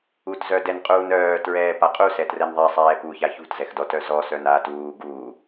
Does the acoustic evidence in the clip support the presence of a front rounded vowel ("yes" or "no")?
yes